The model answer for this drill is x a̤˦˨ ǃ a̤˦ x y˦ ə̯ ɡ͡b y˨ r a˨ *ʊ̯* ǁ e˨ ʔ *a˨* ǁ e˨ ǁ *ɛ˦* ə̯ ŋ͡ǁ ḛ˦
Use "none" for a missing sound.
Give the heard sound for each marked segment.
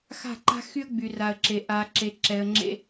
ə̯, a˨, ɛ˨

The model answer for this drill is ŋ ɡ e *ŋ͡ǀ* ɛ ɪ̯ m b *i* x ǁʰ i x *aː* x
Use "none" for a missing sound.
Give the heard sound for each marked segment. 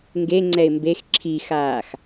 ŋ͡ǀ, e, aː

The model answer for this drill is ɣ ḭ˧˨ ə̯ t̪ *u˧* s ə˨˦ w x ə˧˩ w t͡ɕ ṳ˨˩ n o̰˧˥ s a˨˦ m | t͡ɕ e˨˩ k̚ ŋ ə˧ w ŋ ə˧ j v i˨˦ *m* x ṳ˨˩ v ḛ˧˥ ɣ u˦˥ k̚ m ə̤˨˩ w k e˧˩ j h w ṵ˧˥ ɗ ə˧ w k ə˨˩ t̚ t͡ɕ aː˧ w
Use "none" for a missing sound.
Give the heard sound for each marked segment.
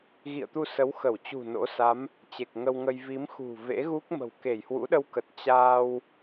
u˧, m

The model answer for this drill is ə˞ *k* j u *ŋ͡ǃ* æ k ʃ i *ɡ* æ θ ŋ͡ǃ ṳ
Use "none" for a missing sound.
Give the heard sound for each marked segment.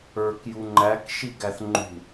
k, ŋ͡ǃ, ɡ

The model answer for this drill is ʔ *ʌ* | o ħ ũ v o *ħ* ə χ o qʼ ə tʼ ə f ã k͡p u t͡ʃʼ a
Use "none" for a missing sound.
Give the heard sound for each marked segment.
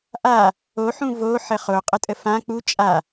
a, ħ

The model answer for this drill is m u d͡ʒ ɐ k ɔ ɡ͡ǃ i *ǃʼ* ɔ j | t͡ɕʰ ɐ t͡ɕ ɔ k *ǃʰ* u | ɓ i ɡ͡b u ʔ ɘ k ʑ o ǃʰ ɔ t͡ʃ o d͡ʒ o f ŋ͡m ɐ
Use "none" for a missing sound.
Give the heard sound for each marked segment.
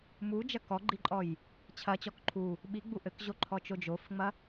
ǃʼ, ǃʰ

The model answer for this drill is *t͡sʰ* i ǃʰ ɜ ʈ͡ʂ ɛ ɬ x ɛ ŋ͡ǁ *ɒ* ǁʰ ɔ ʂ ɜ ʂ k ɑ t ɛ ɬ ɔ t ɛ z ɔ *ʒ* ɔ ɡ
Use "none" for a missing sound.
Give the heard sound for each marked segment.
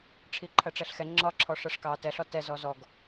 ʈ͡ʂʰ, ɒ, z

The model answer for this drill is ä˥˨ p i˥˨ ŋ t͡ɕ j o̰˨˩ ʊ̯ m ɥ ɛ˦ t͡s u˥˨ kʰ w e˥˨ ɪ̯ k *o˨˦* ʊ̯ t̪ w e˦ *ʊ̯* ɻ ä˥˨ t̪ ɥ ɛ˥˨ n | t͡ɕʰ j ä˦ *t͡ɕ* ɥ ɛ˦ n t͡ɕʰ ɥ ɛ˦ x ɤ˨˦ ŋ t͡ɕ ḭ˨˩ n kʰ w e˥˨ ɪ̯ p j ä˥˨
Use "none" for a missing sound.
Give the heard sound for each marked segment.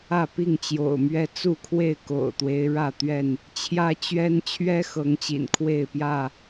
o̰˨˩, ɪ̯, t͡ɕ

